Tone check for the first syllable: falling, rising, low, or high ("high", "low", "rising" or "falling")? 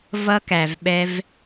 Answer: high